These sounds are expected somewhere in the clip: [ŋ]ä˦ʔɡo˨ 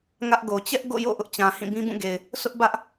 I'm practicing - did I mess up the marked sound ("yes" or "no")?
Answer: no